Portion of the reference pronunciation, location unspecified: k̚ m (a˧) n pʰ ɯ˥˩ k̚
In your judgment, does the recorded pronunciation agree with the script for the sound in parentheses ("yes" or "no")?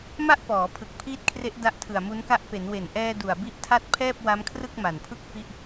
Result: no